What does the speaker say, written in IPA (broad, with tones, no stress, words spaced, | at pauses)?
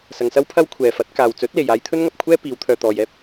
sɐ˧ŋsɐ˥wpʰɐ˥w kʷʰɛː˨fɐ˨˥t̚ kaː˨wt͡sɵ˨˥t̚le˨j aː˧jt̪ʰɵ˥nŋɐ˨p̚kʷʰɛː˥ piː˨˧wt̪ʰœː˨t̪ɔː˨j ɛː˥p̚